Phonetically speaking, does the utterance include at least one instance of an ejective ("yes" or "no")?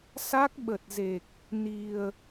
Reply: no